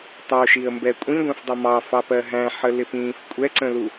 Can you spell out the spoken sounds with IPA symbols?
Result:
tˤ ə ʊ̯ ʃ i ə̯ m b ɛ kʷʼ ĩ ɡʷ ɛ̃ f dˤ ʌ m ɑ f ɑ p ɜ ɦ æ̃ ħ ə l ɪ p ĩː f kʷʼ ɛ ǀ ə̃ l u

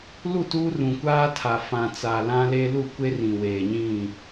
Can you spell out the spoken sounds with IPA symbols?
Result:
l u˦˨ t uː˦ r ũ˨ kʷ aː˦ tʰ a˨ f ã˨ t͡s a˨ l ã˦ l e˦ l u˦˨ kʷ e˦ r ĩ˨ w eː˨ ɲ ĩ˦˨

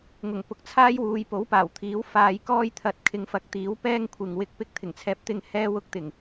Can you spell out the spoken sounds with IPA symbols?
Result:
ŋ ʊ˨˩ ŋ p ʊ˨ k̚ t͡sʰ aː˥ j w uː˨˧ j p o˨˥ w p aː˨˩ w t̪ʰ iː˨˥ w f aː˧ j k ɔː˥ j t̪ʰ ɐ˨˥ t̚ kʰ ɪ˨˧ ŋ f ɐ˨˥ k̚ t̪ iː˨˥ w p ɛː˥ ŋ kʷʰ ɪ˨ ŋ w ɪ˧ k̚ p ɪ˥ k̚ t̪ʰ ɪ˨˩ ŋ t͡sʰ ɛː˧ p̚ t̪ ɪ˧ ŋ h ɛː˥ w ʊ˥ k̚ t̪ ɪ˨˩ ŋ

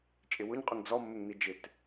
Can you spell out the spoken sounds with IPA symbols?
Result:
t͡ʃʼ ɪ w ʊ ɲ qʼ ʊ ŋ d͡z ɔ mː ɪ ŋ n̪ i d͡ʒ ɪ t

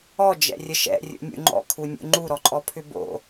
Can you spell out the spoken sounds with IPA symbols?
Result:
ɔ d͡ʒ ɛ̰ rʲ ə ʃ ɛ̰ rʲ ṵ nʲ ṵ ŋ͡ǃ ɔ̰ kʰ u nʲ ṵ ŋ͡ǃ u ɾ ɔ ǃʼ ɔ pʰ ʏ b o̰

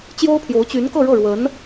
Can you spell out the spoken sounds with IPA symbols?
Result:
t͡ɕ j o˥ ʊ̯ pʰ j o˧˥ ʊ̯ t͡ɕ y˧˥ n k ɤ˥˧ ɻ ɤ˥˩ ɻ w ə˧˥ n

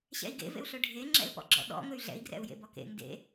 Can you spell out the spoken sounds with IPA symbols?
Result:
ɕ ɛ̰ i̯ ɡ ḛ v ḛ u̯ ɬ ɵ ɖʱ e ŋ͡ǁ ɛ̰ l p ɔ̰ ɡ͡ǁ ɔ̰ ɗ ɔ̰ ŋ ɵ y̯ ɮ ɛ̰ i̯ ɡ r ɛ̰ u̯ j ḛ b ɔ k ḛ ŋ d ḛ

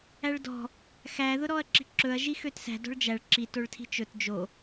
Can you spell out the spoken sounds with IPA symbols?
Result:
æ ɭ d ɔ̤ | x æ ð ʊ ɾ ɔ ɐ̯ ǁ i̤ ǁ ɵ ɐ̯ ʒ i x ø t s æ̤ d ɔ̤ ɭ d͡ʒ æ ɭ ǁ i t o ɭ tʰ i̤ t͡ʃ ɵ t d͡ʒ o

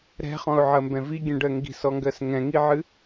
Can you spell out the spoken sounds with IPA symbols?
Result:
ɾ ɛ̤ χ ɔ̃ ʊ̯ ʕ ɐ m b ɛ̃ v i ɡʲ ɛ̃ ɖ ɜ ŋ ɡ i̤ s ɔ ŋ ɡ ɜ s ŋ ɛ̃ ŋ i ʕ ɨ

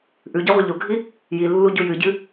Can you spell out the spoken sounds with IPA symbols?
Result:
ʔ ʉ ɟ e ʁʷ ɨ ʎ o ɡʱ i | j i lː u ɟ u j ɨ ɟ ɨ

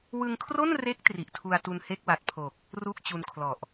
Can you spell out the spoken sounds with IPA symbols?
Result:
w ɯ˧ ŋ kʰ r o˥˩ n r e˦˥ k̚ t r i˨˩ ʔ tʰ u˧ a̯ t u˧ n h e˥˩ k̚ w a˨˩ t̚ pʰ o˨˩ k̚ | r u˥˩ k̚ t͡ɕ u˧ n kʰ l ɔ˨˩ ʔ

